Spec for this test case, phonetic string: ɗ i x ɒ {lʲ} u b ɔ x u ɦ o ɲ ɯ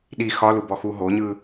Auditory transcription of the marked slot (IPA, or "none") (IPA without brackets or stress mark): l